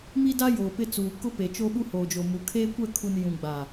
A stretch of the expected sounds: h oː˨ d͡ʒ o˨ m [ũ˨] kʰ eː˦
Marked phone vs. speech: incorrect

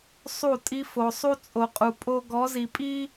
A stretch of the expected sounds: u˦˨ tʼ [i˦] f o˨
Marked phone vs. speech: correct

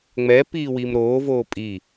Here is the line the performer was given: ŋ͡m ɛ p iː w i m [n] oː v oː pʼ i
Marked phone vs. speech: incorrect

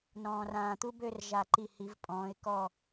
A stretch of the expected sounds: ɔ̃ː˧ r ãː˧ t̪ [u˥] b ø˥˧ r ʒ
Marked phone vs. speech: correct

